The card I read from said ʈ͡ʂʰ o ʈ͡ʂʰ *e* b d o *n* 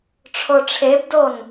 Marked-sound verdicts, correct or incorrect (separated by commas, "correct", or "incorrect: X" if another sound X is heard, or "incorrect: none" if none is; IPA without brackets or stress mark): correct, correct